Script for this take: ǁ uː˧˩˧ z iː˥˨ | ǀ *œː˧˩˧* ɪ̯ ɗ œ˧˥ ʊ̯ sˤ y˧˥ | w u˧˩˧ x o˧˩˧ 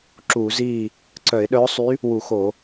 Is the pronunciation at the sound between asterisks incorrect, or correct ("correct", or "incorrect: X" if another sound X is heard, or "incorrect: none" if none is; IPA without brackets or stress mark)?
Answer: incorrect: œ˧˩˧